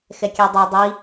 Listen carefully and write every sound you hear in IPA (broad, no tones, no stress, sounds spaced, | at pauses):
x ɛ kʲ ɛ dˤ o dˤ i